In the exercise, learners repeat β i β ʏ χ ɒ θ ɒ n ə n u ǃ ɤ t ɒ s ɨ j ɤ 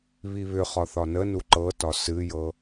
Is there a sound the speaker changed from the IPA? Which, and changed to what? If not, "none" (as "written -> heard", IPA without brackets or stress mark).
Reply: none